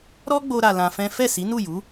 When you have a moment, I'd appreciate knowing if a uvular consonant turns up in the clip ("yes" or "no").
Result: no